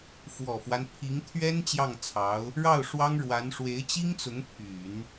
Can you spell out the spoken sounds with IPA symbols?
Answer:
f w ɔ˨˩ f w a˦ n pʰ i˧˥ ŋ t̪ʰ ɥ ɛ˥ n t͡ɕ j ɑ˥˩ ŋ t͡sʰ ɑ˧˥ ʊ̯ | ɻ ɑ˥˩ ʊ̯ ʂ w ɑ˥ ŋ ɻ w a˧˥ n ʂ w e˧˥ ɪ̯ t͡ɕ i˥ ŋ t͡s ʊ˧˥ ŋ pʰ y˨˩˦ n

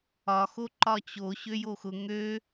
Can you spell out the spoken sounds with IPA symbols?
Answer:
ɒ x o ǃ ɒ t͡ɕ o ɕ ø j o x ʊ ŋ ø

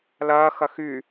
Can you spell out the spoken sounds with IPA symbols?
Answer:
l ɐː x ɐ x y

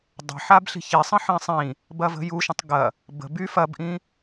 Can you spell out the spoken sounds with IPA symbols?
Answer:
dˤ ə̤ ħ a b ɬ i̤ ç i sˤ ə̃ ħ ĩ sˤ ĩ | b ɐ v ə̤ j u ʃ ə̃ tˤ ɡ ɐ | b ə̤ b y f ɐ b ʔ ĩ

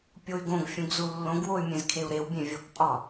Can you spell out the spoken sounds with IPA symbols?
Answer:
pʲ o y̯ ɡ õ ɡ fʲ ũ ɡ z u lː õ ɡ w o y̯ mʲ ẽ z kʰ e u̯ ɾ e w bʲ ẽ vʲ o k pʼ ɒ

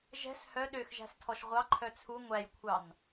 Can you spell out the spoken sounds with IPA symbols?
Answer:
ʒ ɛ̤ s h œ ɗ ø x ʒ æ̤ s tʰ ɔ ʃ ʁʷ ɑ ǃʰ œ t͡sʰ u ŋʷ æ j kʷʰ ɑ n

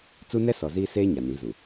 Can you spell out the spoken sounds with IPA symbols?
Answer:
t͡s u˦ n ɛ˦ s ɔ˨ z iː˦ s eː˦ ɲ a˨ n ĩ˨˦ z u˨

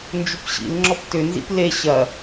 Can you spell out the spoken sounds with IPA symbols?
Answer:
n d͡ʒ ʏ p ɕ ḭ l ŋ͡ǁ ɔ p t ʏ n z ḭ p l e ɕ ɐ

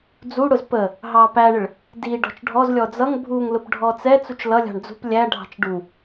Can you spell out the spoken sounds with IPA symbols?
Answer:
d͡z u ɽ ʊ z p ə | ɦ ɑ p æ ɳ ɪ ɭ | d i ɖ ɔ̤ t͡ʃ ɖʱ ɔ z lʲ ɔ d͡z ʌ ŋ bʱ u ŋ l ʊ p ɖʱ ɔ t͡s ɛ t͡s u t͡ʃ l ʌ lʲ ɑ̤ ɳ d͡z ṳ p lʲ æ ɖʱ ɑ̤ t͡ʃ ɖ u

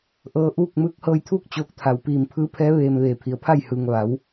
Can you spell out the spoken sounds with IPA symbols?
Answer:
ʔ ɤː˧ ʔ uː˥˨ k̚ m ɯː˧˥ k̚ h ɤː˧ j t̪ʰ uː˥˨ k̚ t͡ɕ oː˧ k̚ t̪ʰ a˩ w p iː˧˩ m pʰ ɯː˧˥ pʰ ɛː˧˥ ʋ eː˧ m ʋ eː˧˩ pʰ i˩˧ ə̯ pʰ a˥˨ j h ɯː˩ ŋ ʋ a˩˧ w

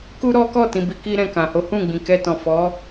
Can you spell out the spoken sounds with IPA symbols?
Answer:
k u˦ ɾ ɔ˦ k ɔ˦˨ t ĩ˧ b i˧ k i˦ ɾ ɛ̃˧ k ã˨ h o˨˦ h ũ˦˨ ɡ͡b ĩ˨ k ɛ˧ t ɔ̃˨ f ɔ˨˦

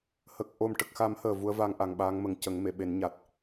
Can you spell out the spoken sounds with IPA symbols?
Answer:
h ə˨˩ k̚ ʔ o˨˩ m ʈ ə˨˩ k̚ x a˨˩˦ m h əː˨˩ v u˧˥ ə̯ v a˧ ŋ ʔ a˨˩ ŋ ɓ a˧˥ ŋ m ə˨˩ ŋ c ə˨˩˦ ŋ m e˨˩˨ ɓ e˨˩˦ n ɲ a˨˩ t̚

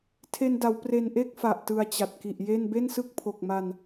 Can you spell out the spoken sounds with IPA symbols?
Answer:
tʰ e˧ n d a˩˦ w p r e˧ n ʔ e˥˩ k̚ f a˨˩ ʔ t ɯ˧ a̯ t͡ɕ a˨˩ t̚ k i˨˩ ʔ j e˥˩ n b e˥˩ n s ɯ˥˩ k̚ pʰ o˨˩ k̚ m a˧ n

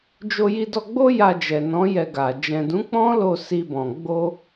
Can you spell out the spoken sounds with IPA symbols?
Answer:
d͡ʒ o˧ j i˧ d ɔ˧ ɡ͡b o˦ j a˧ d͡ʒ ɛ˨ n ɔ̃˨˦ j ɛ˧ ɡ a˨ d͡ʒ ɛ̃˨ d ũ˨˦ k͡p ɔ̃˦ l o˦˨ s i˧ b ɔ̃˨ ɡ͡b o˧

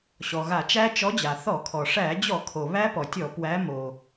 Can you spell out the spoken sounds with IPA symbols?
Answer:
ɕ ɔ˩ ɣ a˧˩˧ t͡ʃ æ˦˥ t͡ʃ ɔ˨˦ d͡ʑ a˩ θ ɔ˧˩˧ kʰ ɔ˩ ʂ æ˧˩˧ d͡ʑ ɔ˧˩˧ kʰ o˩ β æ˦˥ p ɔ˩ tʲ ɔ˧˩˧ p w æ˨˦ m o˩

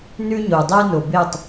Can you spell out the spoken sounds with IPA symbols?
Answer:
n ʉ˥ ɲ o˩ dˤ e˥ n o˩ b e˥˩ tˤ

